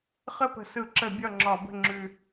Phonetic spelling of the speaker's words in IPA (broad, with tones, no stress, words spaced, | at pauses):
χə˥˨pə̤˧˩˧sɯ˧˩˧ǁə˧˩˧ bʲɒ˥˨ŋ͡ǁɒ˧˩˧bə̤˥˨ ŋ͡ǁʉ˨˩